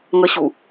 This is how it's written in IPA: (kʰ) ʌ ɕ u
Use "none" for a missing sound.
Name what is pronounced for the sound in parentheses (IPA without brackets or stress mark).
ŋ